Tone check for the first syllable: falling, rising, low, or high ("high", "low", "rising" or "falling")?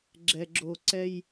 low